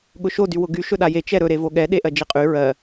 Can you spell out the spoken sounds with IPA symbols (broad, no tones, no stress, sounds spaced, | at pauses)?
ɠ ʊ ʃ o d y w ʊ ɡ y ʃ ɵ ɗ a j e t͡ʃ ɛ ɾ ɵ ɾ e v o ɠ ɛ ɗ e ʔ ɜ d͡ʒ e qʼ y ɹ ɜ